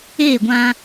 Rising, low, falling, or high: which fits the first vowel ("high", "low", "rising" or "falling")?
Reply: falling